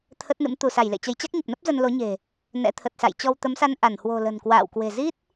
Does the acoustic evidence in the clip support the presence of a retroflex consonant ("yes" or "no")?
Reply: no